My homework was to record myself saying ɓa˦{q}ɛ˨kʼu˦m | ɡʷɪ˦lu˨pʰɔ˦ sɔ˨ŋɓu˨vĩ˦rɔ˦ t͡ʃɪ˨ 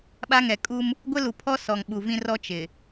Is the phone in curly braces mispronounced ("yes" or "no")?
yes